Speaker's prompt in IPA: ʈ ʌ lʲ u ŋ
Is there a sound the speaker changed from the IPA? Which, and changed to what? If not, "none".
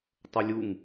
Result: ʈ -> tˤ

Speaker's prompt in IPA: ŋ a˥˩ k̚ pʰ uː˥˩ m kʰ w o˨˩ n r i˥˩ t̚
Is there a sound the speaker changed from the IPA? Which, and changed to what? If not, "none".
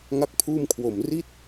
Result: n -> m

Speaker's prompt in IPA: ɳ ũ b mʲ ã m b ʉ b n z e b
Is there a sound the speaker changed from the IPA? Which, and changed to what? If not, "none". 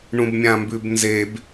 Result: none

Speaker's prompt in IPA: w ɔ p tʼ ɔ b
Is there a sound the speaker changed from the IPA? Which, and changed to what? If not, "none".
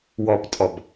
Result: none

